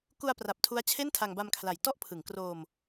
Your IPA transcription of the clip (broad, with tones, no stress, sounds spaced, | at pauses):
k u˧ a̯ p r a˨˩ p̚ tʰ u˦˥ a̯ t͡ɕʰ e˥˩ n tʰ a˧ ŋ b a˧ m kʰ l a˨˩ j t ɔ˥˩ ʔ pʰ ɯ˩˦ ŋ k r oː˧ m